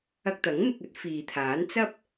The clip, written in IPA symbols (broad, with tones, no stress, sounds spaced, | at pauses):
ɐ˧ k̚ t̪ ɐ˨˥ ŋ m ɪ˧ k̚ ɵ˥ t̚ f iː˨ t̪ʰ aː˨˥ n t͡s ɐ˥ p̚